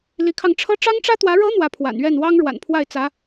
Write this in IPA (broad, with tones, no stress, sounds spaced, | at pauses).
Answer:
l i˧˥ kʰ ɑ˧ ŋ ʈ͡ʂʰ ɤ˥ ʈ͡ʂ ɑ˥ ŋ ʈ͡ʂ ä˥ t̪ w ä˧˥ ɻ ɤ˧˥ n̪ w ä˧˥ pʰ w a̰˨˩ n ɥ ɛ˥˩ n w ɑ˥ ŋ ɻ w a̰˨˩ n pʰ w a˥˩ ɪ̯ t͡s ä˧˥